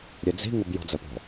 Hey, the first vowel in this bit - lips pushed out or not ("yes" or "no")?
no